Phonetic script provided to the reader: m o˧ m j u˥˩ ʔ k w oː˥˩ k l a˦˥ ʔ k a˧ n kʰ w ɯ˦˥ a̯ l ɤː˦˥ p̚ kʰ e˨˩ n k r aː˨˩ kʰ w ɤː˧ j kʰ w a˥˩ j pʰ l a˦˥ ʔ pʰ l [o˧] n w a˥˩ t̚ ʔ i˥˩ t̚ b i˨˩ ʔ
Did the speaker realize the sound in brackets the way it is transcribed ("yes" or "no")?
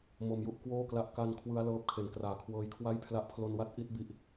yes